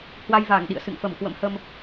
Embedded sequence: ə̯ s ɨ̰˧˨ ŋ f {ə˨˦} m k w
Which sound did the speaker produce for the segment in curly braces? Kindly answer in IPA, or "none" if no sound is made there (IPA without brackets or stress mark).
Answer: ə˧˩